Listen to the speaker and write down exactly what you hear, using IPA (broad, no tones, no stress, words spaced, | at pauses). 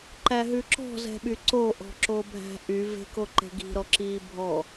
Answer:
ǃæɦʉǁɔ̤ zɛ̤ɓyǀo ʔɔ̤ǁobʱæ̤ʔy ve̤koǃe̤ɡi̤ ɾɔǁiːbʱɔ